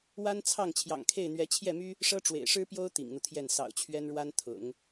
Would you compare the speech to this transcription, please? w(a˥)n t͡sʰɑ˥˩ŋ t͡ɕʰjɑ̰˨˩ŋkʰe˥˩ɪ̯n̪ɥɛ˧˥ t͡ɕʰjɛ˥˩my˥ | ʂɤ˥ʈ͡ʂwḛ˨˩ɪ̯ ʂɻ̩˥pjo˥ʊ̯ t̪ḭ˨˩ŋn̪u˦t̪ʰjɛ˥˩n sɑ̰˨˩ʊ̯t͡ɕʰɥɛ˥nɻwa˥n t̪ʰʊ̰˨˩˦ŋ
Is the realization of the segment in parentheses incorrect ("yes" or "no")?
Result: no